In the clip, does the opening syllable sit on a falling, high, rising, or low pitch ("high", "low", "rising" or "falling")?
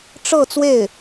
falling